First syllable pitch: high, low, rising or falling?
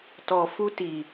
low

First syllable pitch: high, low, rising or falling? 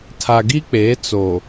low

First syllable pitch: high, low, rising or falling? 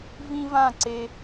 high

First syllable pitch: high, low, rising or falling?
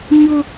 high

